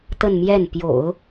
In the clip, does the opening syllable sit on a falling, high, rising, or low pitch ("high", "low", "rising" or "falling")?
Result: falling